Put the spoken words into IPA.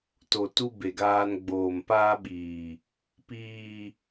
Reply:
t o˨ t u˦ b e˨ ɡ aː˦ n ɡ͡b oː˨ m p aː˦ ɓ iː˨ | p iː˨

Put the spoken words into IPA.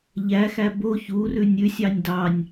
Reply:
ʎ æ x æ b o ç u r ʉ nʲ ʉ sʲ ɑ nʲ d ɑ nʲ

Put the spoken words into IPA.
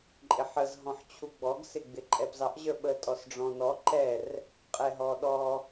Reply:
ǃʼ ɪ ħ ə z ɦ ɔ̃ ħ t͡ɕʰ u ɡ͡b ɔ ɡ s ɪ ɡ͡b ɪ ǃʼ ɛ p z ɑ ʔ ʑ ə˞ ɓ ə tʼ ɔ s ɖ͡ʐ ɔ̃ n ɔ ǃ ɛ r | qʼ ɛ ɦ ɔ ɗ ɔ

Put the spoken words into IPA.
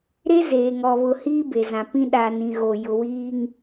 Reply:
ɾ e˦ z eː˨ ŋ ɔ˨ β ʊ˨ h iː˦ b e˨ z ã˨ p ĩ˦ ɗ a˨ n ĩ˨ ɣ o˨ j ʊ˨ w iː˦ ŋ

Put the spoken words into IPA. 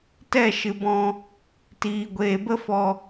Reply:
t ɛ˦˨ ʃ ɨ˨ b ɔ̃˧ | t iː˨ ɡʷ eː˨ b ə˦ f ɔ˧

